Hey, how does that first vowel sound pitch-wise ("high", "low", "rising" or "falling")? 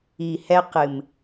low